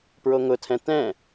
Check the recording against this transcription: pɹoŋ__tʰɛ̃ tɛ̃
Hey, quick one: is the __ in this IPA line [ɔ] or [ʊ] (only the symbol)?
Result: ʊ